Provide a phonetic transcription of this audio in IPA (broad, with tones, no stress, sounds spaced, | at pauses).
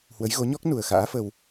h w ə˨˦ j ɣ o˨˦ ɲ ɔ˦˥ k̚ n u˨˩ ə̯ x a̰ː˧˥ f ə˧ w